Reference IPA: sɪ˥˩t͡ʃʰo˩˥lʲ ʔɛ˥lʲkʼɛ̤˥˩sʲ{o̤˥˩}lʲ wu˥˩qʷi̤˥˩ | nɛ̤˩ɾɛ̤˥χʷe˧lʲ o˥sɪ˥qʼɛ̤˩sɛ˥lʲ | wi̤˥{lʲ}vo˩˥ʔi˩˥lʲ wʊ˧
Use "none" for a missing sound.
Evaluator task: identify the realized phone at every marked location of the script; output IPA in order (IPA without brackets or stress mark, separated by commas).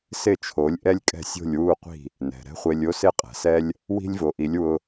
o̤˥˩, lʲ